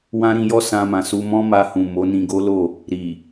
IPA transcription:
w ã˦ ɾ ĩ˧ j ɔ˦ s ã˧ m ã˨ s u˧ m ɔ̃˦ m a˧ h ũ˨ m o˨˦ n ĩ˧ ɡ o˦ l o˦˨ | ɾ i˨

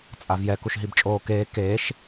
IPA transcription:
t͡sʼ a v j ɛ k u ʃ ɦ i b t͡ʃʼ oː k eː k eː ʃ

